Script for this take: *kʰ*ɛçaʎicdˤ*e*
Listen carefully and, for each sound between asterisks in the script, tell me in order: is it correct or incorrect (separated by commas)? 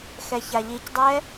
incorrect, incorrect